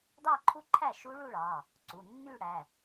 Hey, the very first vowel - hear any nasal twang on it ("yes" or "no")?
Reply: no